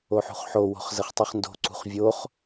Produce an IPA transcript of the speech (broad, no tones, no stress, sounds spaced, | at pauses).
o ħ ṳ χ ħ o w o̤ χ z ə χ tˤ u χ n d o̤ ǀ ṳ χ vʲ o χ